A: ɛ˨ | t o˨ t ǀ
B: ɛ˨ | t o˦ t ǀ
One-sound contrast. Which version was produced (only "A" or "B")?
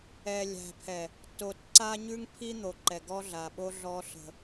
A